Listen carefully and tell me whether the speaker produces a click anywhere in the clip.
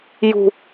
no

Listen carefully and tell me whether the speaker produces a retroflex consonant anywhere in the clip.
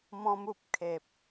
no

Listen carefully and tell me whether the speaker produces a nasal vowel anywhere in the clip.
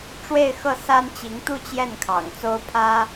no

